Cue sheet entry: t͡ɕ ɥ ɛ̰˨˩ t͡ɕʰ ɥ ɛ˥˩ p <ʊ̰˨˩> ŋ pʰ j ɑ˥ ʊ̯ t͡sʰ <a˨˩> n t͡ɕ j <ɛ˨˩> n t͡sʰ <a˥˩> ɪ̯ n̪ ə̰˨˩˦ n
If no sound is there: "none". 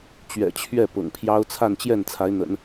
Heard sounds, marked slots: ʊ̰˨˩, a˥˧, ɛ˥˩, a˧˥

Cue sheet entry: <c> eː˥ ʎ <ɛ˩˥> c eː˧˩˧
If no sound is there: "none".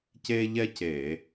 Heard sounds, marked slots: c, ɛ˥

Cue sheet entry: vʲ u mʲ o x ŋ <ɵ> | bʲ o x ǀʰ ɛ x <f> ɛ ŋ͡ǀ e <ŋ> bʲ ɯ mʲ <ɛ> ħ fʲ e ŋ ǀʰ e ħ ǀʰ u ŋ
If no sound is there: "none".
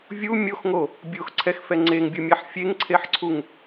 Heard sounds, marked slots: o, f, ŋ, ɛ

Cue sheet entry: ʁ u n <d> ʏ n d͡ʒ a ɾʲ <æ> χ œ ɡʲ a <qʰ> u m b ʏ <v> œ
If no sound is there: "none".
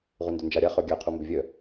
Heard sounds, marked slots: d, a, qʰ, vʲ

